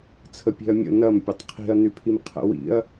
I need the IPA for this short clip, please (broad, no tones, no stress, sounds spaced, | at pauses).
t͡sʰ ə pʲ e̤ ɐ̯ mʲ ə̰ n ɐ m pʲ ɐ tˤ qʰ i̤ ɐ̯ n y pʰ i m qʰ ə̰ w ḭ ɐ̯